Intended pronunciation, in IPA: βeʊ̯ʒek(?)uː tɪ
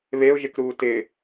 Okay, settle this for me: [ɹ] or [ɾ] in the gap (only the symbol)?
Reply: ɾ